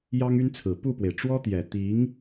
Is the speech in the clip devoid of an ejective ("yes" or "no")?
yes